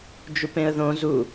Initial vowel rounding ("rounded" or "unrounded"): rounded